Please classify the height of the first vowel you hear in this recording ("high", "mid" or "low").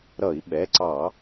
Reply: mid